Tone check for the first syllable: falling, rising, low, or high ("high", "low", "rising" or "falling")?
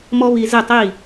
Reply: high